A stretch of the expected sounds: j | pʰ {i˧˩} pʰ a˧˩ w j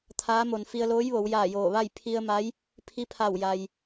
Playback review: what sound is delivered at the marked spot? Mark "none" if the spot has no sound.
i˧˥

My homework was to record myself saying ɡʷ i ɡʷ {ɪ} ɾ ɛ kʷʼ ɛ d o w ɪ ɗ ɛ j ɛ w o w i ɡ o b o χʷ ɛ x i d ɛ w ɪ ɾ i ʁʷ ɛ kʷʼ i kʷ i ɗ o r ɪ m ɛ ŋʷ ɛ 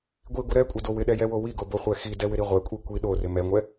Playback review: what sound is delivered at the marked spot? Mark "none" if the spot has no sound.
ɪ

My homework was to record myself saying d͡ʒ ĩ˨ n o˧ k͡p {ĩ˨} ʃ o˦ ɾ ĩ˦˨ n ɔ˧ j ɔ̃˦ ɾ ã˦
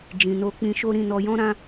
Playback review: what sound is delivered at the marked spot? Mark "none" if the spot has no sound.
ĩ˧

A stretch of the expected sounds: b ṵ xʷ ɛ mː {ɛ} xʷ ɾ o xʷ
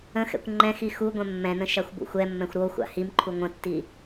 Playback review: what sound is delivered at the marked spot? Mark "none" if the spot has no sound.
ɛ̃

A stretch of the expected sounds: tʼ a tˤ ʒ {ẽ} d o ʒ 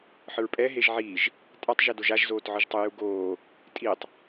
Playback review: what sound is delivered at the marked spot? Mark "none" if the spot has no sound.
e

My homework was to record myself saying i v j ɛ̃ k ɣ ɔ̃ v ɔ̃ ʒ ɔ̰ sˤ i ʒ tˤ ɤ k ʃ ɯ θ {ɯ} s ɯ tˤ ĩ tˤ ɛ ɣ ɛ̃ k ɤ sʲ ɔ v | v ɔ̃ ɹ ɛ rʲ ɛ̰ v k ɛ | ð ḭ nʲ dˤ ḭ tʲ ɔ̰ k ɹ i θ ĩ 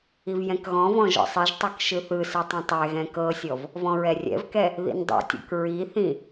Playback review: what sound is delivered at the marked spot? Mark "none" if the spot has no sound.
ɯ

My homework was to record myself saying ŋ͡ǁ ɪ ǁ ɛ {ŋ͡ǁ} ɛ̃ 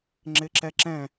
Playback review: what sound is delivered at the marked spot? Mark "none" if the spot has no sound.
ǁ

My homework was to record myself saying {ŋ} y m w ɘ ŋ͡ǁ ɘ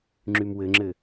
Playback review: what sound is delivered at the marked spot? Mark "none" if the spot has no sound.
ŋ͡ǁ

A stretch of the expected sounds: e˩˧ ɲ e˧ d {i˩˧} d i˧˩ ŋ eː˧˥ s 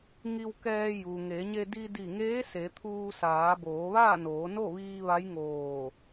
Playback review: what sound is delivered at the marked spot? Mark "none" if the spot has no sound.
i˧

